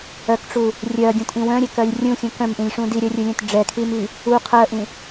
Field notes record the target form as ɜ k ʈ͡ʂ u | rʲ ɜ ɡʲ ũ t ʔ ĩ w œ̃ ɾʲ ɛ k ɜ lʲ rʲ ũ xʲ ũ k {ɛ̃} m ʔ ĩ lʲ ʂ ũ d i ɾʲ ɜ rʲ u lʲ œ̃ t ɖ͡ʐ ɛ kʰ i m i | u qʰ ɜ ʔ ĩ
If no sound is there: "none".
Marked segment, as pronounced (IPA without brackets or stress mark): œ̃